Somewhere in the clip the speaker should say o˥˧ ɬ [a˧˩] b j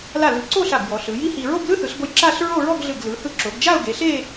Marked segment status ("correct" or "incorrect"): correct